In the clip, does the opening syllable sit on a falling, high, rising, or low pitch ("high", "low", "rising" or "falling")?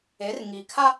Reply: rising